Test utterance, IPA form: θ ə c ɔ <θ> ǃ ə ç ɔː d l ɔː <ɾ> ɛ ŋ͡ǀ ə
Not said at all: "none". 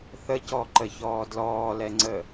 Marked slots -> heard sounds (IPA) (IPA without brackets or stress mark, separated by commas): none, l